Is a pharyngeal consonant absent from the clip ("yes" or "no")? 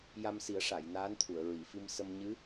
yes